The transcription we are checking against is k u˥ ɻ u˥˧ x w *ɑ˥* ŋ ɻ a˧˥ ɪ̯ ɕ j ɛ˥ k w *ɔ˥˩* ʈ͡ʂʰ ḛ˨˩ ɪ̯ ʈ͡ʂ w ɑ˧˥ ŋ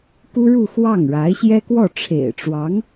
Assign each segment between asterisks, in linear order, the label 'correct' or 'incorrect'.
incorrect, correct

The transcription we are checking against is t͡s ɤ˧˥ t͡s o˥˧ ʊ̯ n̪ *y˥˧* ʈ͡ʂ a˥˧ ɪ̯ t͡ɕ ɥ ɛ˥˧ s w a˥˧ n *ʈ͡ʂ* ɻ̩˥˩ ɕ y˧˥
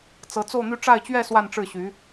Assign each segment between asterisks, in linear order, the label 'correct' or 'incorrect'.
correct, correct

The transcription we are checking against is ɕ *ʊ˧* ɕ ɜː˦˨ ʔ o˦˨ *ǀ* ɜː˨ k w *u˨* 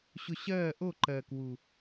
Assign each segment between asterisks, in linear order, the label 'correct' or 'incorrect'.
correct, incorrect, correct

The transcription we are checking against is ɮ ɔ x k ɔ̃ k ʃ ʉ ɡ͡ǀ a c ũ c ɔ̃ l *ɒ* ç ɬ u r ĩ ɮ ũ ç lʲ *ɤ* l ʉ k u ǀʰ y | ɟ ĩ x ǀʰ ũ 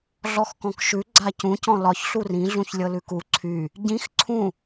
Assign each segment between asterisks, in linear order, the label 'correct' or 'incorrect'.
correct, correct

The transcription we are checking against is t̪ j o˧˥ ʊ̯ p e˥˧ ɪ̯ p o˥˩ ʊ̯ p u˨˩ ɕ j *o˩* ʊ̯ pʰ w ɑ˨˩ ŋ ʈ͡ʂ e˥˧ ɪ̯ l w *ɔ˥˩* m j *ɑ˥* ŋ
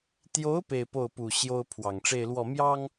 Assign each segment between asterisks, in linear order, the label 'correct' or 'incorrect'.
incorrect, correct, correct

